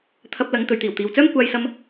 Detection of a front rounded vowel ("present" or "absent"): present